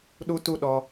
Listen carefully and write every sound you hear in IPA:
ɗ u˦ t u˦ ɗ ɔ˧

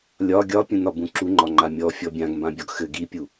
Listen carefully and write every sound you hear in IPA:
lʲ ɒ ɡʲ ɒ pʲ ũ n ɒ b ũ ǁ u ŋ͡ǃ ɒ ŋ͡ǃ a mʲ ɔ fʲ ɔ bʲ ã ɡ m b ã bʲ ɒ ɡ x ɘ ɡ i pʲ u

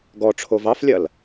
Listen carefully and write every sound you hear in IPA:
ɡ ɔ ʈ͡ʂʰ o v ɑ f lʲ ɐ l

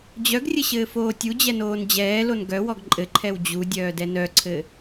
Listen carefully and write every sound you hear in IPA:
d͡ʑ œ ɡ rʲ ɘ ɕ ɘː f oː tʲ u d͡ʑ ɛ n oː n d͡ʑ ɛː l o n ɡ œ w ɔ ɡ ǃʼ ɘ ǃʰ ɛ w d͡ʑ u dʲ œː d ɛ n œ ǀʰ ɘ

